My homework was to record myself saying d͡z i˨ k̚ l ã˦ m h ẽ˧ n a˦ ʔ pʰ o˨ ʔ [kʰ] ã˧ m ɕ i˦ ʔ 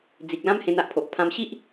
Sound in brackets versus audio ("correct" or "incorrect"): incorrect